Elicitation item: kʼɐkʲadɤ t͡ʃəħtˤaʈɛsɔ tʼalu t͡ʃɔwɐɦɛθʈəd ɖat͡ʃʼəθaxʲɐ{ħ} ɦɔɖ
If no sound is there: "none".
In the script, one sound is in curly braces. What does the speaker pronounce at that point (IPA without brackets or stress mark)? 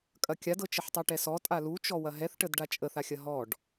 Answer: none